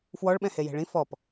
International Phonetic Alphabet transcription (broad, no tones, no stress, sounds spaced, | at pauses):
f w ɔ ɭ ɓ ɛ̃ h e j e̤ ɭ ĩ f ɔ p